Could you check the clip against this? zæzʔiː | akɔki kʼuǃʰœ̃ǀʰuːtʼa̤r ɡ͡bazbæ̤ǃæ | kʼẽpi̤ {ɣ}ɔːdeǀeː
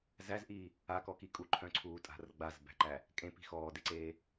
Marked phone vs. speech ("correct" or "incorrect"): incorrect